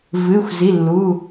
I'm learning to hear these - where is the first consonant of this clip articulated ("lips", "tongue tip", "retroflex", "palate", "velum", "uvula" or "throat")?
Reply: lips